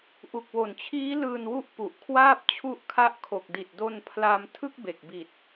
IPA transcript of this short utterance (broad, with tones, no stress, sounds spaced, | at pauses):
ʔ u˨˩ k̚ w o˨˩ n t͡ɕʰ iː˦˥ l ɯː˧ n w u˦˥ ʔ p u˨˩ ʔ kʰ w aː˥˩ p̚ t͡ɕʰ u˦˥ ʔ kʰ a˦˥ ʔ kʰ o˨˩ k̚ d i˨˩ t̚ d o˧ n pʰ l a˧ m tʰ ɯ˥˩ k̚ b e˨˩ k̚ b i˨˩ t̚